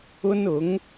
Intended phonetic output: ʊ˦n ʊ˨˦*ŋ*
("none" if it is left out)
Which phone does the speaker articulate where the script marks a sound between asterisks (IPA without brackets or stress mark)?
ŋ